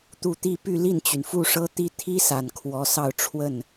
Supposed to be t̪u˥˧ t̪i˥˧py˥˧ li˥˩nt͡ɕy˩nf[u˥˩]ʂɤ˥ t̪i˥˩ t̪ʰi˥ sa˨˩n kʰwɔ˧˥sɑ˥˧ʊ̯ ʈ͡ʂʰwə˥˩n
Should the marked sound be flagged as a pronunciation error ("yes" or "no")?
no